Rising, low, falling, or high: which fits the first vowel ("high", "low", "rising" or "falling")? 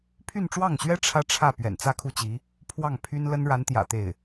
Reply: falling